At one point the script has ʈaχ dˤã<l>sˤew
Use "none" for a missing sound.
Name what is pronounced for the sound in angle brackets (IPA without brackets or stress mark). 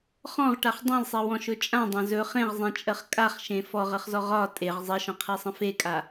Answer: l